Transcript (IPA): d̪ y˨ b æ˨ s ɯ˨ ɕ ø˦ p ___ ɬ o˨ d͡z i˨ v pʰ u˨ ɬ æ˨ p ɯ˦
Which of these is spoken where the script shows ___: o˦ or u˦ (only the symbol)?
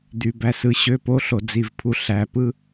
o˦